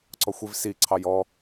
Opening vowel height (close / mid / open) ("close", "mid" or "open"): mid